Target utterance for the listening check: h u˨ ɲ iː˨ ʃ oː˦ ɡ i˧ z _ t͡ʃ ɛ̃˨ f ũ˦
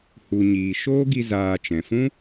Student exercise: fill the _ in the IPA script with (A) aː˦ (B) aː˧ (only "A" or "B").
B